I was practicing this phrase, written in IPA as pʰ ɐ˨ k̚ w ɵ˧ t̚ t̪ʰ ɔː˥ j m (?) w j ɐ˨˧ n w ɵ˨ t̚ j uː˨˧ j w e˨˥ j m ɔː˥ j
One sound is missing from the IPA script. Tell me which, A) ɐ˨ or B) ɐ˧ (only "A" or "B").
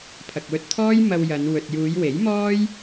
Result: B